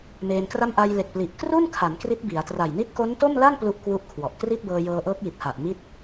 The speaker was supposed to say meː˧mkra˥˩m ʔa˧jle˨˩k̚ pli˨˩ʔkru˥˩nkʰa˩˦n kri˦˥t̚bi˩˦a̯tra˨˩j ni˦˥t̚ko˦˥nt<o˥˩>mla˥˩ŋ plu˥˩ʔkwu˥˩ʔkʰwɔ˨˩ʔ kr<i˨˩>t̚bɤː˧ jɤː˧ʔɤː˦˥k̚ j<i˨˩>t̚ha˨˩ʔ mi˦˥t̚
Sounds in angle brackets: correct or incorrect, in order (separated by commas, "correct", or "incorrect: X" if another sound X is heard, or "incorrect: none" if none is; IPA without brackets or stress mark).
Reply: correct, incorrect: i˥˩, correct